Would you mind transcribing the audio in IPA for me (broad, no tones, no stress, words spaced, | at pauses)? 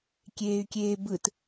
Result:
kʲeːy̯kʲeːbɯt